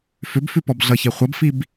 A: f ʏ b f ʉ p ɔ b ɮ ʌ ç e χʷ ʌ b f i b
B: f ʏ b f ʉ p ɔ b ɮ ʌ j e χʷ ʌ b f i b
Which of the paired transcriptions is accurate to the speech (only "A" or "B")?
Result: A